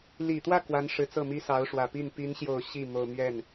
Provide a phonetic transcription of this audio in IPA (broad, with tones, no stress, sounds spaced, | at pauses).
l i˨˩ t̪ w ä˥˩ k w a˧˥ n ʂ ɻ̩˨˩ t͡s ɤ˥˩ m i˥ s ɑ˧˥ ʊ̯ ʂ w ä˨˩ p i˥˩ n p i˧˥ n ɕ j o˨˩ ʊ̯ ɕ i˥˩ m o˨˩ ʊ̯ m ɥ ɛ˥˩ n